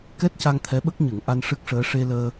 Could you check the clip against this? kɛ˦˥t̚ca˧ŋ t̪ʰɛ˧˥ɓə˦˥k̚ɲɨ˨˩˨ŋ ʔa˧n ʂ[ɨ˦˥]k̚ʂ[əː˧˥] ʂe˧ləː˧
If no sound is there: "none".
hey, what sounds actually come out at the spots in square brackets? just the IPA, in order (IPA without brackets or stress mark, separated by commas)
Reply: ɨ˦˥, əː˧˥